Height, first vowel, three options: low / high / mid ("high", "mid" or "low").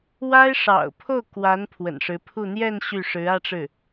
low